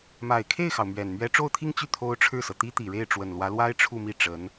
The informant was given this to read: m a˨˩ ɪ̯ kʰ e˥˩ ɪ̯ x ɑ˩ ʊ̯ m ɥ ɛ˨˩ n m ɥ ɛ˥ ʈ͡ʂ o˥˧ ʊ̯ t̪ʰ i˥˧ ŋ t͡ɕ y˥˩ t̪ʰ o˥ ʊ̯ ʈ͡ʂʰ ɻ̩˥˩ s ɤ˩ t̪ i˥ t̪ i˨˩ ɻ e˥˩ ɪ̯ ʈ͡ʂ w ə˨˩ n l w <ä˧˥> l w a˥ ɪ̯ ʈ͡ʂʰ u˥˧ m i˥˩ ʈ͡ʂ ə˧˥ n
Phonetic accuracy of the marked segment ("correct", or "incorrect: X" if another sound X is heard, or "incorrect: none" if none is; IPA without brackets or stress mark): correct